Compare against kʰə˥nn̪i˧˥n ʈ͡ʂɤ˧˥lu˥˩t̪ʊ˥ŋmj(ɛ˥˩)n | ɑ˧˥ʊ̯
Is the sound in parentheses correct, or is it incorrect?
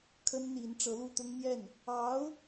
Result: correct